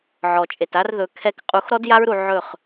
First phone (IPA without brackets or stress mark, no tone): ʕ